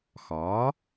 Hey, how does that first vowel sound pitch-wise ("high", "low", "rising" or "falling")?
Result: rising